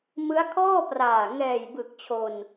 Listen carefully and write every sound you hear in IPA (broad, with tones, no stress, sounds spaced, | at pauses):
m ɯ˦˥ a̯ kʰ ɔː˥˩ p r aː˨˩ ŋ ɛː˨˩ j b ɯ˨˩ k̚ t͡ɕʰ o˧ n